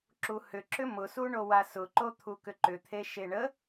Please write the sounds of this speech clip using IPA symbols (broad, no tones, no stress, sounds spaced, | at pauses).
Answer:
ǁ u h ʏ ǁ ʏ m ʊ s u ɳ o w a s ʊ ǃ o t̪ʰ u k ʏ ǃ ʏ t̪ʰ e ʃ e ɳ ə